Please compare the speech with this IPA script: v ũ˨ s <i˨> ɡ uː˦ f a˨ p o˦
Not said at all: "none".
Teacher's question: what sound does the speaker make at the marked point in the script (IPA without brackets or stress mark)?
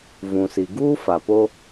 i˨